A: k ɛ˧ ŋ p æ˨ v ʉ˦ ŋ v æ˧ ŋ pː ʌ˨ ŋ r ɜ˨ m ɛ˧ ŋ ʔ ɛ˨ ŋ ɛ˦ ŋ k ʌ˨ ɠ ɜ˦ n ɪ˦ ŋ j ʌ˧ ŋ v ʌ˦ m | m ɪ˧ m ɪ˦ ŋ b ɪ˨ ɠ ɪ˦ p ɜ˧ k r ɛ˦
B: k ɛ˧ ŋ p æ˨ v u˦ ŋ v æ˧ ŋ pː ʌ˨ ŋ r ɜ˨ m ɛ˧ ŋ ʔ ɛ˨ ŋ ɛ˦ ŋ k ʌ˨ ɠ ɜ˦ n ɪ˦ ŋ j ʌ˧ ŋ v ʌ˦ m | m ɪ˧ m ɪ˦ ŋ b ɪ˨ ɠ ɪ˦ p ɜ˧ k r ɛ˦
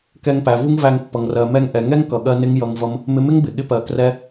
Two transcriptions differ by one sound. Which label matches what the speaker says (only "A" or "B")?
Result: B